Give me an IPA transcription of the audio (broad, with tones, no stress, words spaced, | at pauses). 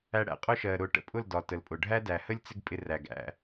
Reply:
æ˧ɽæ̰˧qʼʊ˦ʃɜ˨ ɾʊ˨˦ʈə̰˧pʼʊ˦˨ldɒ˨ tə˨lpʼʊ˨ ɖʱæ˦dæ˨hə˦lʲ t͡sɪ˦ɡ pʼɪ˧ræ˨ɡ æ̰˧